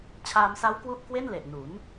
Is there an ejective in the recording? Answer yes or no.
no